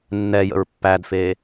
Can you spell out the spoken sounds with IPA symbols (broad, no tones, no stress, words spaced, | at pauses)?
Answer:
nːɛjə̰ɹ pːædfeː